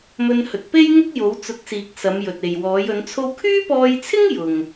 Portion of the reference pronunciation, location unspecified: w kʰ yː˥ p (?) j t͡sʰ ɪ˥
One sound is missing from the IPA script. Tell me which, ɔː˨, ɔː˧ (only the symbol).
ɔː˧